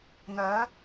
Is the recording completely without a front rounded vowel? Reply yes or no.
no